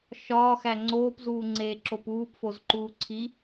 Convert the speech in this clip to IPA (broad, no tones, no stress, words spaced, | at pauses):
ʃɒːxæ ŋ͡ǀoːpzuːŋ͡ǀeːǁop uːpfozǃuː ǀʰi